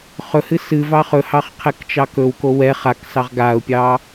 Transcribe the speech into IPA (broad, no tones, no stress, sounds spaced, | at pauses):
χ ɵ h ɨ s ɨ v ɑ χ ɵ h ɑ χ qʰ ɛ k t͡ʃ ɑ k ɵ w k o w ɛ χ a k s ɑ ʁ ɡ a ʊ̯ pʲ ɑ